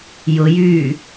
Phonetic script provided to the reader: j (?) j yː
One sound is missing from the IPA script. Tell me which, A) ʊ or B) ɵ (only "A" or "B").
A